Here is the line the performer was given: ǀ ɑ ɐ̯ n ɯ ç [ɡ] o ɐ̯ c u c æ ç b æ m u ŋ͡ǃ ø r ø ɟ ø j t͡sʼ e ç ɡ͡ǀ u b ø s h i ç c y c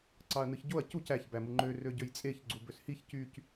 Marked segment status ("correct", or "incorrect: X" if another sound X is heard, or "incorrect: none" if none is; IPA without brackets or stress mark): incorrect: ɟ